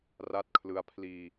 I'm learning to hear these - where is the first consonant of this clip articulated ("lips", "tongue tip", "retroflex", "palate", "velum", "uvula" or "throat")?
tongue tip